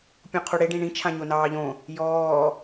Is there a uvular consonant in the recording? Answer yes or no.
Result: yes